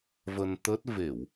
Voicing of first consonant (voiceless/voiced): voiced